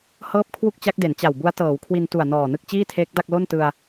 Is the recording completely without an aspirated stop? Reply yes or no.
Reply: no